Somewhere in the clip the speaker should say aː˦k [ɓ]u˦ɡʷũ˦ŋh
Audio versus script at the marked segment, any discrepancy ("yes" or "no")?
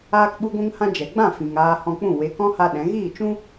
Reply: no